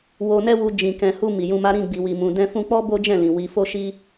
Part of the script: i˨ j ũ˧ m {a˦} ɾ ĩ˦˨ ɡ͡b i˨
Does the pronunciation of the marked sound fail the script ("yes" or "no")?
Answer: no